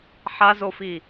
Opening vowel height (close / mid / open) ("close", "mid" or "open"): open